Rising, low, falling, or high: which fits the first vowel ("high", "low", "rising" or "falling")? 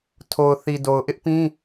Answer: low